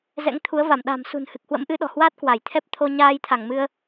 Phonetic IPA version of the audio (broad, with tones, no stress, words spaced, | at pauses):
zɛ̰˧˥ŋt̪ʰu˨˦ə̯va˧˩m ɗa̤˨˩msṳ˨˩nhɨ˨˩k̚ hwə̰˧˥mʔɨ˨˦ ɗɔ̤˨˩hwaː˦˥t̚ kwa˧˩jt̪ʰɛ˦˥p̚t̪ʰo˧ ɲaː˧jt̪ʰa˧˩ŋ mɨ˧ə̯